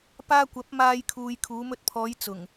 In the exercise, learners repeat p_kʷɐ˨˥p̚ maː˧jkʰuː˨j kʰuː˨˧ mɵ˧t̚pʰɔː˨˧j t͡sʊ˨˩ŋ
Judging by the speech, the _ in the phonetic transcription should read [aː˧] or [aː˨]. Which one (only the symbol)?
aː˧